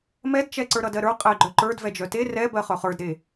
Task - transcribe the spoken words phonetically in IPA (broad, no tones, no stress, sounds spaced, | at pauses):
m ɛ d t͡ʃ ɛ ǀ ə˞ ɾ ʌ d ɜ ɾ ə˞ qʼ ɛ ɡ͡ǃ œ ǃ ə˞ d v ɛ d͡ʒ œ t e r ɛ b ɜ χ œ χ ə˞ d ɾ e